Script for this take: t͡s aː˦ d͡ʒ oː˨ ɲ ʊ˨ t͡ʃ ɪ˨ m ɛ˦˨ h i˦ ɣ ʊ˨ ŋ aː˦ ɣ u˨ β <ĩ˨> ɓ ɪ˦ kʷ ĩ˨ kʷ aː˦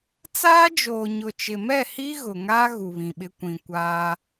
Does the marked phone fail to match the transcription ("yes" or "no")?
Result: no